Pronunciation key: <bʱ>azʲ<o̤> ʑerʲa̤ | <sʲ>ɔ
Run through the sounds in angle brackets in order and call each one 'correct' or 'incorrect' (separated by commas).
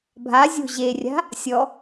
correct, correct, correct